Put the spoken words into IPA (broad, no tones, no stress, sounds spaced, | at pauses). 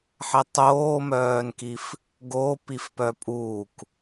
ħ ɛ tˤ oː m œː n k i f | ɡ o p i f p œ pʼ uː k